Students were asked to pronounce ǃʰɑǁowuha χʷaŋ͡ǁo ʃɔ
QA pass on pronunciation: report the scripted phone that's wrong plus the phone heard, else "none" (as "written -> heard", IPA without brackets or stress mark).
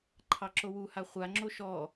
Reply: none